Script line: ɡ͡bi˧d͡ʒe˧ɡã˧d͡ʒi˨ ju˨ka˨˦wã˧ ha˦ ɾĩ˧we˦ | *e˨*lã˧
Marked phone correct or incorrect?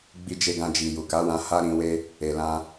correct